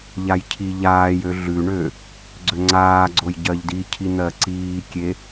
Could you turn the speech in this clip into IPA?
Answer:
ʎ a j cʰ i ʎ aː j ø ɮ ʉ ɳ ø | ɡ͡ǀ ø ŋ͡ǀ aː ɡ͡ǀ o j ɟ ɜ ʎ d i cʰ i n̪ ɜ ǀ iː kʲ e

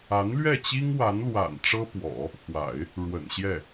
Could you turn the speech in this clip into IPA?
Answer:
a˧˥ n l ɥ ɛ˥˩ t͡ɕ i˥ ŋ w a˧˥ n l w a̰˨˩ n ʈ͡ʂ ɤ˥ p w ɔ̰˨˩˦ | x w a̰˨˩˦ ɪ̯ | ɻ w ə̰˨˩ n ɕ j ɛ˥˩

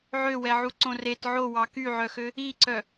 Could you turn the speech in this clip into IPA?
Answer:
ʕ ø w ɛ ʕ u ǀ õ r e t ʕ o w ɑ k y ʕ œ x ø | i ǀ œ

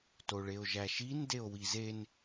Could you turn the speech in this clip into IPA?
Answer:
t o ɭ e o̯ ʒ æ ʃ i n d e o̯ w i z e n

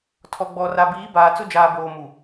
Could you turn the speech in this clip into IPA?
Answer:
tʰ ɔ˨ ɡ͡b ɔ˨ r a˨ b iː˨˦ b aː˨ t͡s ʊ˦ d͡ʒ aː˨ b oː˨ m u˨

